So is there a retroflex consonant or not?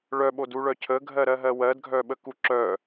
yes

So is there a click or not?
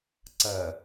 yes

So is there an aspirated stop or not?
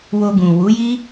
no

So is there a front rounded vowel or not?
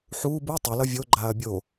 no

